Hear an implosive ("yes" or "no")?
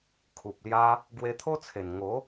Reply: no